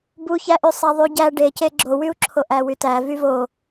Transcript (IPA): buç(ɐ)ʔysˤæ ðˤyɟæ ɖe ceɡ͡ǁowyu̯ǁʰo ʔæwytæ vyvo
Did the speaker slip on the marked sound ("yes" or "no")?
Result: yes